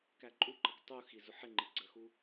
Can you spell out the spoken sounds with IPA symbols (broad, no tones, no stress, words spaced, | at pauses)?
kæǃʼuǃʌk tˤu xizʊħɪŋ͡ǃi ɡ͡ǀəxu